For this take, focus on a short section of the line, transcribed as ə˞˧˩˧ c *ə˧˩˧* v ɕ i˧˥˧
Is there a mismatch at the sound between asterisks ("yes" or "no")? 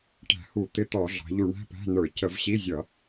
no